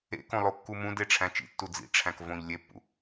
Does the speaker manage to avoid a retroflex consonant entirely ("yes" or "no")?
no